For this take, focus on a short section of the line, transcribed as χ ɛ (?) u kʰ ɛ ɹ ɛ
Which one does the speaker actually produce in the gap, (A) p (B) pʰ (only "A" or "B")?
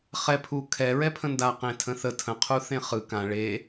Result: B